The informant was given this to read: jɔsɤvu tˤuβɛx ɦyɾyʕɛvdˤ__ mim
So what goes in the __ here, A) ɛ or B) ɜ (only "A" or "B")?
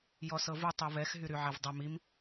A